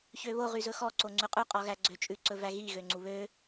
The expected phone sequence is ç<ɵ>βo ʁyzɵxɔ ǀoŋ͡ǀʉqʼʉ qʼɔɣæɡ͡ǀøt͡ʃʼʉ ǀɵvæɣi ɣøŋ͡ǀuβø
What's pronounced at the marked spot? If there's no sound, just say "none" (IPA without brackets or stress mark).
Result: ø